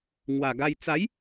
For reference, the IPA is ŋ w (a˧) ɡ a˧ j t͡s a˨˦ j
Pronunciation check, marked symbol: incorrect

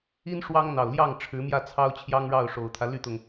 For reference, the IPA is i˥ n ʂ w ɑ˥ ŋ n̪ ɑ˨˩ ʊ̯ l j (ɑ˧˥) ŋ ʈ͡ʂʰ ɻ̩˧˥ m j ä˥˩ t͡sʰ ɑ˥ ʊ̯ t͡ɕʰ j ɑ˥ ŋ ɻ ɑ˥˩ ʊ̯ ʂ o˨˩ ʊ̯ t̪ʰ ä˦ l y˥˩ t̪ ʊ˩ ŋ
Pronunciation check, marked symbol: incorrect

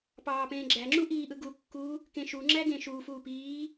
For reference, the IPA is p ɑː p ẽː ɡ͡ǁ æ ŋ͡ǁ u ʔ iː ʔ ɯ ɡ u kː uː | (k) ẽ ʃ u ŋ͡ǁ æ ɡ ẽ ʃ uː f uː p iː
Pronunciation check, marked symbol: correct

